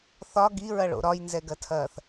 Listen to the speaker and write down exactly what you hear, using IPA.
θ ɒ ɡ i ɹ ɐ ɭ o̰ ɾ ɒ j n z ɛ ɡ ɐ tʰ ɐː θ

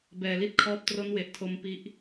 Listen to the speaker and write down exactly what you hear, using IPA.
b ɛː˧ l i˥˩ t̚ kʰ ɔː˦˥ p̚ t r o˦˥ n w e˨˩ ʔ tʰ o˧ m p i˥˩ ʔ

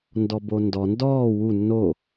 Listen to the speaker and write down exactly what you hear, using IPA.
n d ɔ b o n d ɔ n d ɔː w u nː o

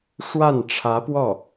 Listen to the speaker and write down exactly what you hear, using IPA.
ʂ w a˥˩ n ʈ͡ʂʰ ä˧˥ p w ɔ˥˩

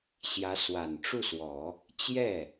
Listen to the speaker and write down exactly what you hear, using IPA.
ɕ j ä˧˥ s w a˨˩ n ʈ͡ʂ u˥˩ s w ɔ˨˩˦ | t͡ɕ j ɛ˥˩

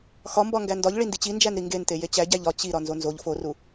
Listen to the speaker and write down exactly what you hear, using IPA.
x ɒ m b ɒ ŋ ɡ æ n d ɒ ʎ ɭ i n d i t͡ɕ i n d͡ʒ æ n ɾ i ŋ ɡ e n t e j e t͡ɕ æ ɟ æ ʎ ɒ t͡ɕ i ɾ ɒ n z o n z o ʎ f o r u

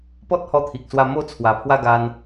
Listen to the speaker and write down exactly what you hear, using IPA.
p ɔ˦ t̚ h ɔ˧ t̪ʰ i˨ k̚ s w a˧ m o˦ t͡sʰ w a˨˩ pʰ w a˥˧ ɡ a˧ n

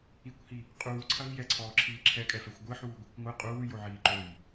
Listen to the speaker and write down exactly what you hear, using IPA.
i kʷ h i | qʼ uː ǀʰ ɐ v j ɛ ǀʰ ɔː ǁʰ iː ǁʰ ɛ kʼ ɛ f ɛ xʷ ɡʷ ɨ ħ uː ɡʷ i kʷ ŋʷ ɨ qʼ uː j o ʕ iː ǃ o j

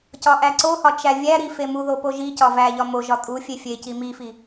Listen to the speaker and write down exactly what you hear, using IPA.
c ɒ ʔ æ ǀ o h ɒ t͡ʃ æ vʲ æ ɾ i f e m u ð o p o ʒ i c ɒ v æ ʎ ɒ m o ʒ ɒ tʼ u fʲ e fʲ e c i m i f i

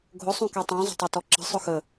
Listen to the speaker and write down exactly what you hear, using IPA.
ɡʱ ʊ sˤ ũ k ɛ tˤ ɛ̃ zˤ ə̤ tˤ ɑ t ɔ ǁ ə̤ sˤ ʊ x ə

